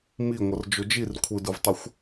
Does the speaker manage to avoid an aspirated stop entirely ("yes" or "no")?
no